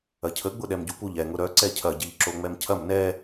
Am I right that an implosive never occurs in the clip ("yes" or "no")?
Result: no